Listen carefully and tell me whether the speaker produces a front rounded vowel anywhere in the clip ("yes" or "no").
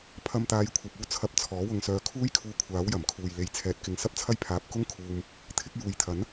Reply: yes